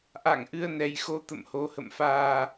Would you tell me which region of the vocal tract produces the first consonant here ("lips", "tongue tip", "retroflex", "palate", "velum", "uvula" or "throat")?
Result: throat